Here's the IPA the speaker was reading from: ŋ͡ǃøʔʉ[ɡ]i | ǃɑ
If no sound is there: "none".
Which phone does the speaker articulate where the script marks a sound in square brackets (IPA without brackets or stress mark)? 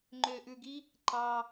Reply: ɡ